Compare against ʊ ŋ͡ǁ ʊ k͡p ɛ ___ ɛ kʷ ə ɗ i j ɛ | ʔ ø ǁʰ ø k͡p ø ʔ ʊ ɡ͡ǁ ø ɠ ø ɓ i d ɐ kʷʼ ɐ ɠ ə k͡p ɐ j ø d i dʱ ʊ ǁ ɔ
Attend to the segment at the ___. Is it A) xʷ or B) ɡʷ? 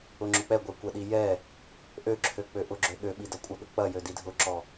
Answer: B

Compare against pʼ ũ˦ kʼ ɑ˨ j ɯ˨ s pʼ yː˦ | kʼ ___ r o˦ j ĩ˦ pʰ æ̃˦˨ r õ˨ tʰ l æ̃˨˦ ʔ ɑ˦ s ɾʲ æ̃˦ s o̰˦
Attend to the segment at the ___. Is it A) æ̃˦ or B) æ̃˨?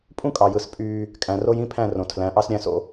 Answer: B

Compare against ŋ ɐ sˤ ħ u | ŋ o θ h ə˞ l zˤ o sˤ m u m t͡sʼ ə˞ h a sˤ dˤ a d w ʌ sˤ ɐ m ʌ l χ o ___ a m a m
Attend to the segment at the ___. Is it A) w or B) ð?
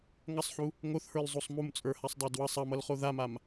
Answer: B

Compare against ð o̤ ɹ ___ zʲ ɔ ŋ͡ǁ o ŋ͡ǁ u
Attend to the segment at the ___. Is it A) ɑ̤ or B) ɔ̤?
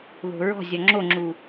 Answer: B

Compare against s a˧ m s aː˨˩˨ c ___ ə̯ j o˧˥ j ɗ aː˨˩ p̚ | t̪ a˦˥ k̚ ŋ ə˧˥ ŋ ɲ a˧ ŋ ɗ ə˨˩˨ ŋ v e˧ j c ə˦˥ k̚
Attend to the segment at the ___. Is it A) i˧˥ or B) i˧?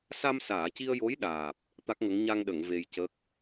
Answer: B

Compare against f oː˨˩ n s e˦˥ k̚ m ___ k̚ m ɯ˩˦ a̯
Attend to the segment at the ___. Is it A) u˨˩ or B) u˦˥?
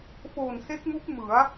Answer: B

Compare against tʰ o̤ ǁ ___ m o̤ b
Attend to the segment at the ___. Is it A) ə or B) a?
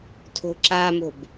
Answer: B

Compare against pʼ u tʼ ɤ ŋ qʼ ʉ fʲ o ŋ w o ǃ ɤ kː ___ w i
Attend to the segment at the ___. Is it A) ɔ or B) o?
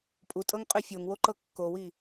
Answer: B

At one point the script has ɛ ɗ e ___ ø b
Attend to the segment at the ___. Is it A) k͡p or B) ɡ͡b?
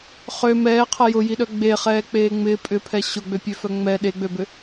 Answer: B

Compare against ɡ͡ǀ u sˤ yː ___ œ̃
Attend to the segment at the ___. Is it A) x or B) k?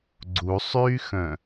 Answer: A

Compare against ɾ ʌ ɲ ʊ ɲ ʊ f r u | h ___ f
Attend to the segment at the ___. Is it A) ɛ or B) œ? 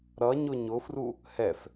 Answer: A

